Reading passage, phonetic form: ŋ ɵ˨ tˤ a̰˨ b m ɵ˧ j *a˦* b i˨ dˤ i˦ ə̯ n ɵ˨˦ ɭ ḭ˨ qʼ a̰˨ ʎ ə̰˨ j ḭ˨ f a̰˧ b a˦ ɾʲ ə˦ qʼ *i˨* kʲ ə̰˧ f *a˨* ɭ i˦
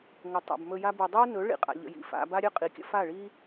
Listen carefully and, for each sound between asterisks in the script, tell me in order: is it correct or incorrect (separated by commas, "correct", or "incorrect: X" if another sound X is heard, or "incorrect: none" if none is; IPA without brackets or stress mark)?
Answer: correct, correct, incorrect: a˦˨